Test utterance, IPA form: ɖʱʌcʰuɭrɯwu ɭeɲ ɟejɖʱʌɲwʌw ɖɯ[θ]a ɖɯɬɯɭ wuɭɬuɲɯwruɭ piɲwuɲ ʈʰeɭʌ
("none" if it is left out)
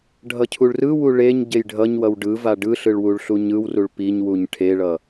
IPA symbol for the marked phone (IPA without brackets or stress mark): v